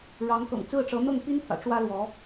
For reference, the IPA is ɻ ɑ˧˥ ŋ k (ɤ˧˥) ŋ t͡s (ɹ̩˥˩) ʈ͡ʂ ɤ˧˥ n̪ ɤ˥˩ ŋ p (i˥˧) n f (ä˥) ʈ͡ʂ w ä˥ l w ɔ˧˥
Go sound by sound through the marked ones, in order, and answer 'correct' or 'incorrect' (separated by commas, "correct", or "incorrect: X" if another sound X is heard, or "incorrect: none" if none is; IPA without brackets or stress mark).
incorrect: ɤ̰˨˩, correct, incorrect: i˥, incorrect: ä̰˨˩